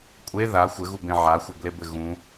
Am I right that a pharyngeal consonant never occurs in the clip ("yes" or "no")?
no